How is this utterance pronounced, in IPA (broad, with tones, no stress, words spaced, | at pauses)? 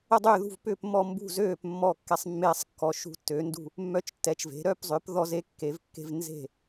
ə˥˨dˤʏː˥˨ðṳ˥˨v pʏː˥˨pmːɔ˥˨mbṳ˥˨ zøː˥˨p mːɔ˥˨kːɛ˦˥sˤ mːeː˦˥sˤ kːɔ˨˥ʃṳ˦˥tːø˨˥ndṳ˥˨ | mːœ˦˥t͡ʃtːɛ˨˥t͡ʃve̤˨˥ ɾœ˥˨pzˤʏː˨˥p ðɔ˦˥ze˦˥kːe˨˥vkːe̤˦˥v nze̤˥˨